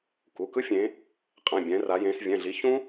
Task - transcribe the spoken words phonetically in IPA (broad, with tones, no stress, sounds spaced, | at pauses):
k u˩˧˩ k ɯ˥ fʲ ẽ˨˦ | qʼ ã˩˧˩ bʲ ɛ̃˨˦ r a˨˦ j ẽ˨˦ s vʲ ɛ̃˩˧˩ ɮ i˨˦ ç ũ˥